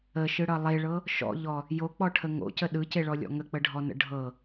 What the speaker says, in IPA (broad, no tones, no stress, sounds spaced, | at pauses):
ə ʃ ɯ ɽ ʌ lˠ e ɭ ɤ | ʃ ɔ̰ ʎ ɔ | j o k͡p ɔ ʈʰ ə ŋ o̰ c ə ɗ ɯ c e ɭ ɔ lʲ ɔ̰ ŋ ə k͡p ə ɖʱ ɔ n ə̰ ɖʱ ɤ